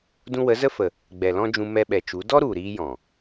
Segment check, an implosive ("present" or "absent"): present